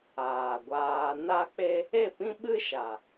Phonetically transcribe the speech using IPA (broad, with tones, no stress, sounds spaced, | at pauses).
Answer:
aː˨ ɡʷ aː˧ n a˦ k͡p e˦ | e˦˨ p ĩ˦ ɓ ɨ˦ ʃ a˨